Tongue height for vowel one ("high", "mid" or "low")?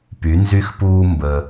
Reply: high